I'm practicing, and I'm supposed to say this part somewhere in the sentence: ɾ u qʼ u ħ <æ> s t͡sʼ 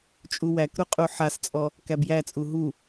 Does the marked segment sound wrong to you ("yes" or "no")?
yes